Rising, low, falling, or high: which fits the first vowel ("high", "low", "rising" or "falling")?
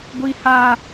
high